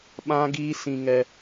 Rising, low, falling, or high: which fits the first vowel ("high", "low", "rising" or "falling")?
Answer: high